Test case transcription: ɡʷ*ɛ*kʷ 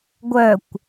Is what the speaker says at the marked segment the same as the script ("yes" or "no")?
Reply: no